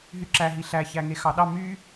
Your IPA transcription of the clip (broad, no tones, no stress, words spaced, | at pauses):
ɦyǁæɦi ɬæçæŋe xɑɗɑ my